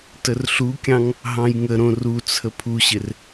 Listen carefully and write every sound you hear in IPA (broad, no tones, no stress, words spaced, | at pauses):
tərɬukʲɑ̃ŋ | ɦɑ̃jŋəɾõ rut͡sʰə pʰuɕɪr